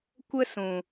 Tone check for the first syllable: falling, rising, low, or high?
high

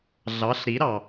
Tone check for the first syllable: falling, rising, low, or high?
rising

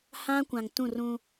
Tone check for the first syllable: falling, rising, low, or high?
high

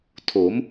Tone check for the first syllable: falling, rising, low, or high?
rising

